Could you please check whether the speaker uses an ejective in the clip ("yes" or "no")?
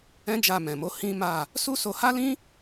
no